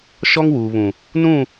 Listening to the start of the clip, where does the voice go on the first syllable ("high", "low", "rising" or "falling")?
high